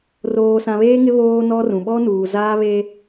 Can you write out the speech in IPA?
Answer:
r oː˨ s ã˨ β eː˦ ŋ ɪ˦ β oː˦ n ɔ˦ r ũ˨ ɓ ɔ˦ n uː˨ z aː˦ β e˦

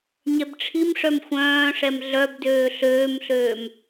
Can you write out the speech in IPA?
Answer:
ɲ ɛ b ʈ͡ʂʰ i m ʂ œ m xʷ œ̃ː ʂ ɛ m ɮ œ b d øː ɬ øː m ɬ øː m

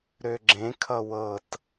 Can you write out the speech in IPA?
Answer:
ɾ ø ɡ͡ǁ ẽ kʰ ʌ w ɤ t

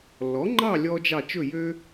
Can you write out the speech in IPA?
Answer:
lː ɔ˨˥ ŋ͡ǃ ɑ˥˧ lʲ ɔ˥ d͡ʒ ɑ˥˧ t͡ʃ ɵ˥˧ j ø˥

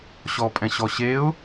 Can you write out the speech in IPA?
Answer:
ɕ ɔ pʼ ɛ̃ ɕ ɔ ɕ e ʊ̯

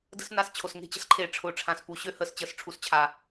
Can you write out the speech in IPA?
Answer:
d ə̤˦ s n a˧ s t͡ɕʰ o˨ s ŋ e̤˦˨ t͡ɕ ə̤˧ s ǃʰ eː˨ ʈ͡ʂʰ ʊː˨ ʈ͡ʂʰ ã˨ s p u˨ ɕ ø˦ h əː˨ s t͡ɕ əː˧ s ʈ͡ʂʰ u˨ s t͡ɕʰ a˨

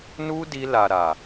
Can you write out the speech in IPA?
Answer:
n u˦ d i˧ l a˨ ɾ a˨

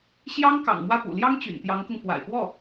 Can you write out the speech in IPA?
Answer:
ɕ j ɑ˥ ŋ k ɑ̰˨˩ ŋ m w ä˥˩ p ṵ˨˩ l j ɑ˥ ŋ t͡ɕ y̰˨˩ n t̪ j ɑ˧˥ ŋ k ʊ˧ ŋ f w a̰˨˩ ɪ̯ p w ɔ˥˩

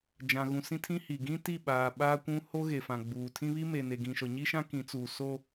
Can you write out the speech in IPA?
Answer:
d͡ʒ ã˨ ɣ ũ˨ s ĩ˦ tʰ ĩ˦ h i˨ ɡ ĩ˦ t i˦˨ ɓ aː˨ ɓ aː˦ kʷ ũ˦ h o˦ ɣ e˨ f ã˨ ɡ͡b uː˨ tʰ ĩ˦ β i˦ m e˨ n e˨ ɡ ĩ˨ ʃ ɔ˨ ɲ i˦ ʃ ã˦ k ĩ˨˦ t͡s uː˨ s o˦

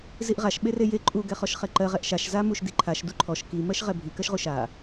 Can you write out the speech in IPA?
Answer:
z i ʔ ʁ a ʃ ɓ e r e j e ǃʼ u ɡ ɛ χ ɔ ʃ χ ɛ ǃ ɜ ʁ ɛ ʔ ʃ a ʃ z a m u ʃ d i ǃʰ a ʃ d u ǃʰ ɔ ʃ k i m ɜ ʃ ʁ ɛ bʱ i k ɜ ʃ ʁ u ʃ a

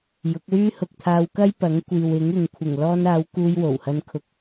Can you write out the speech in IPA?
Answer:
j ʊ˨˥ k̚ w yː˥ h ʊ˧ k̚ t̪ʰ aː˧ w k ɐ˥ j p ɐ˨˥ ŋ kʷ iː˨ w ɪ˨˥ ŋ ɪ˨ ŋ kʷʰ ɪ˨˩ ŋ l ɔː˧ n aː˨˧ w k uː˧ j w o˨˩ w h ɐ˧ n kʰ ʊ˧ k̚

